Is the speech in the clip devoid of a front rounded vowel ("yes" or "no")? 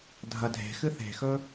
yes